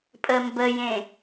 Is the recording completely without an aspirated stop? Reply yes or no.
yes